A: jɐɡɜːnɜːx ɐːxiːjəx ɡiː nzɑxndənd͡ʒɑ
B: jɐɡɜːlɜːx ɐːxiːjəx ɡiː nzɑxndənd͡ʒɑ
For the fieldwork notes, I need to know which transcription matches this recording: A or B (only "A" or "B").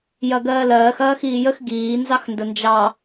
B